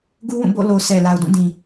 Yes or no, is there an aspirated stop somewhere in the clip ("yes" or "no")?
no